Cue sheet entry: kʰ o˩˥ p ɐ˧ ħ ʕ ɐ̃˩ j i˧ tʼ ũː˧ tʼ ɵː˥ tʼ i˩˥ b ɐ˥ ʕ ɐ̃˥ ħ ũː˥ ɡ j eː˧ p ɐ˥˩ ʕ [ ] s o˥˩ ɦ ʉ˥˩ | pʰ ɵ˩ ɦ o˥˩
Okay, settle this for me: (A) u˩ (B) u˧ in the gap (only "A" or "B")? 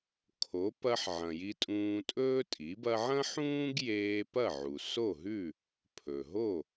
A